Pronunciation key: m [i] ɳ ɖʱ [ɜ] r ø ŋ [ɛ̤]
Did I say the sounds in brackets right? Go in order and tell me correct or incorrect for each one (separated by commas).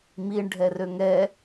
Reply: correct, incorrect, incorrect